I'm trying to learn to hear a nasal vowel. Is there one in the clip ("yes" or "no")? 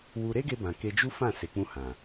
yes